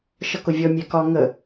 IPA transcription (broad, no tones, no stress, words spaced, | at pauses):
ʃʌkʊvʲɔ mʲækɒ ŋə